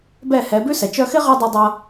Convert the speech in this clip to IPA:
bɛ˦˨hɛ˨˦ bʉ˦sɛ˨ t͡ʃœ˧xɪ˦ʁɛ˧ dˤu˧dˤʌ˧

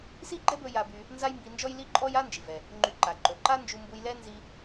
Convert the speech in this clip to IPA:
si˥ɡ͡ǃɛ˥bɵ˧ ja˧by˧ | nza˥jmbi˧nd͡ʒɔ˥j li˥ǃʼɔ˥j a˥nd͡ʒi˩vɛ˩ | ŋ͡ǃy˧ǃa˩ ǃɵ˩ǃa˥ nd͡ʒu˧mbu˧j lɛ˥ nzi˧

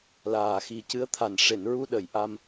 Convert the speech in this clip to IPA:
laː˨˩xi˨˩cɨ˧˥ə̯t̪ʰa˨˩n ʂe˨˩˨nɹu˧ɗə˨˩˨jʔa˧m

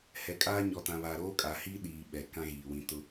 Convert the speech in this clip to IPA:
hɛ˨kʼaː˦ ɲɔ˨tã˨βaː˨ ɾoː˦kʼa˨hiː˦ ɗiː˨ ɓɛ˨kã˦ɣiː˨ wĩ˨tʊ˦

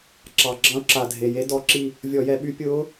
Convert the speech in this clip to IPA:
ǁɑ˨˩ɡ͡ǁɑ̃˧˥ʊ̯ ǁa˨˩dʱe˨˩je˧˥ dɔ˧˥ǁi˦˨ | vʲɔ˧˩˧jɛ˧˩˧ɓy˧˥ pʲʊː˧˥

